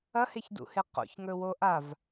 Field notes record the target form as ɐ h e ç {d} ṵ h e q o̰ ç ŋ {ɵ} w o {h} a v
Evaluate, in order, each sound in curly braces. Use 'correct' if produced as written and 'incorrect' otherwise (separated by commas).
correct, correct, incorrect